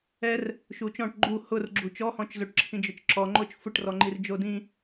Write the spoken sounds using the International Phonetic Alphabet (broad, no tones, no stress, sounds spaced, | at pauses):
ɛ r | ʃ u t͡ʃ ɔ̃ ʈ ɡ͡ǃ u h ʊ r ɡ͡ǁ u t͡ʃ ɔ h ɔ̃ t͡ʃ z o ʈ ǁʰ ĩ d͡ʒ ʊ t͡ʃ ǁ ɔ ŋ͡ǃ o t͡ʃ f ʊ ʈ r ɔ ŋ͡ǃ i r d͡ʒ o d ĩ